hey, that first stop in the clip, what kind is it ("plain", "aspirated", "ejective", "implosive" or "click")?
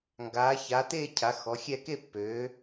plain